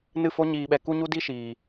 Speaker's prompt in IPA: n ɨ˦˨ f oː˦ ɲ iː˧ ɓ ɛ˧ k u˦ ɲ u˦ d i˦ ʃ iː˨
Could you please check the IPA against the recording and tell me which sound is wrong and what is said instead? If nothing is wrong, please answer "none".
oː˦ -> o˦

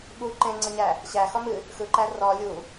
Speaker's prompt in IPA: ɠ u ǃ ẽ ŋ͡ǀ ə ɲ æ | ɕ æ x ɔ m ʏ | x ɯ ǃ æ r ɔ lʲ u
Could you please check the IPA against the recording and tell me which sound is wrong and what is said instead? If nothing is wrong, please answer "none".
ʏ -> ɨ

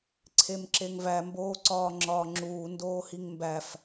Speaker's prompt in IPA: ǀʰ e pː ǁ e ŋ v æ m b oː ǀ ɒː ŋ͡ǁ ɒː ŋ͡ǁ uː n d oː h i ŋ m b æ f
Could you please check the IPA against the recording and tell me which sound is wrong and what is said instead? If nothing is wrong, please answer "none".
pː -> m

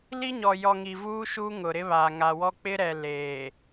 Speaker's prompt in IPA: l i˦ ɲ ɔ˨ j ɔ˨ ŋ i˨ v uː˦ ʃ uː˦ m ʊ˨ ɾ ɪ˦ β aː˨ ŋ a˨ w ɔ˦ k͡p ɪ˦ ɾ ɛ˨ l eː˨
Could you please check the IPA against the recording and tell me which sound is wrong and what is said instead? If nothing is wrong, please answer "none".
m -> ŋ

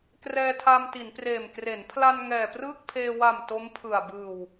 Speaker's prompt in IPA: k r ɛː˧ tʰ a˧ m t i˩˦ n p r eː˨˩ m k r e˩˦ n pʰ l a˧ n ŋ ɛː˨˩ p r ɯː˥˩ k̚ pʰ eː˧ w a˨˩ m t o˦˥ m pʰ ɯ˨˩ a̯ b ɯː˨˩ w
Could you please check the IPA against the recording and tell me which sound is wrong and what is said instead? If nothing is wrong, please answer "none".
none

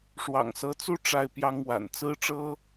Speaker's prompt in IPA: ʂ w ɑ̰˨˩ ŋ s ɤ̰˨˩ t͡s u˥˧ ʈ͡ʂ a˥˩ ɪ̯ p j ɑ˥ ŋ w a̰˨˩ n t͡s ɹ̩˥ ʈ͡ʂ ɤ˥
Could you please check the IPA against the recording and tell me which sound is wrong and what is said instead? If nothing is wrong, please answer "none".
ɤ̰˨˩ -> ɤ˧˥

